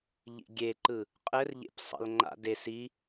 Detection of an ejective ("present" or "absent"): present